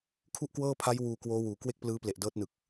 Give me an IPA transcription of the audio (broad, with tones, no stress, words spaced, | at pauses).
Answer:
kʰu˥˩ʔkwɤː˥˩pʰa˦˥j wuː˧kwoː˦˥ wuː˩˦ kwe˥˩k̚plɯː˦˥ple˨˩ʔ dɤː˦˥t̚nɯ˨˩k̚